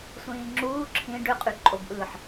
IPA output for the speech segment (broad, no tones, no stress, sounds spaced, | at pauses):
sʷ ĩː ŋ͡ǁ uː ǁʰ ĩ ɖ ø qʼ y ǃʼ o b ʔ ɯː ħ